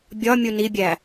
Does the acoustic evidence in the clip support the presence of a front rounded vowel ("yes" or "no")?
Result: no